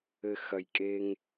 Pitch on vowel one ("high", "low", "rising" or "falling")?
low